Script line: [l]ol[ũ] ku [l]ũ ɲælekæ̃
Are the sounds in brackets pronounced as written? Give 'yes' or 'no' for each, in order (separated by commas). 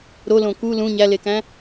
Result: no, no, yes